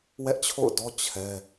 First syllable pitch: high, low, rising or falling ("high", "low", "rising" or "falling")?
high